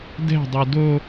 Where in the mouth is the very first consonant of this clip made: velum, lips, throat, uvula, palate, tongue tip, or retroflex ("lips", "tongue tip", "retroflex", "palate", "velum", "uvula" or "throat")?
tongue tip